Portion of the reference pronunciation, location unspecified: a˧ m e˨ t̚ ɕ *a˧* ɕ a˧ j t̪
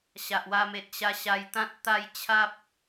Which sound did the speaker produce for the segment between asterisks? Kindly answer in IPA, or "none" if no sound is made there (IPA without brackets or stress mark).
a˧